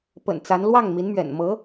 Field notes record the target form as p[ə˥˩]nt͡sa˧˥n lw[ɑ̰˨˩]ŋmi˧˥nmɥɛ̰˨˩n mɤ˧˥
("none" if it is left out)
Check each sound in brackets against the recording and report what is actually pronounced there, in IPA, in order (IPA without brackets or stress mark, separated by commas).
ə̰˨˩, ɑ˥˩